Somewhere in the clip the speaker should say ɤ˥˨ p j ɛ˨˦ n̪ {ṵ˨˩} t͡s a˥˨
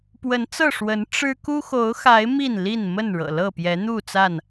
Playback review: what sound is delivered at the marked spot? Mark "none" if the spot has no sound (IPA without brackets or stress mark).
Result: u˥˨